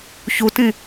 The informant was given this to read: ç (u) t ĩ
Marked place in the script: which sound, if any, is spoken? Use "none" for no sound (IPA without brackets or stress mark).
u